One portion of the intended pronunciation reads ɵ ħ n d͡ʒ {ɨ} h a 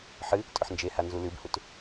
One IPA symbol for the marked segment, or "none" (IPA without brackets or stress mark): e